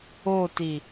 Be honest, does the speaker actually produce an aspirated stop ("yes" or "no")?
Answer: no